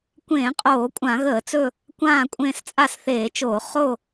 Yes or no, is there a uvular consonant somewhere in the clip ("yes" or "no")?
yes